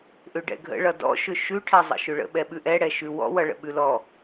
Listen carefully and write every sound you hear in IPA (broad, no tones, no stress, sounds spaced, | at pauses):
ʔ ʏ ɖ ɛ̰ ɡʱ ə̰ ɭ ʌ d ɔ̰ ʃ ʏ ʃ ʉ ʈʰ ɛ zˤ ə̰ ʃ ʏ ɭ ə̰ ɓ ɛ ɓ ʉ ʔ ɛ ɽ ɛ ʃ ʉ w ɔ̰ w ʌ ɭ ə̰ ɓ ʉ l ɔ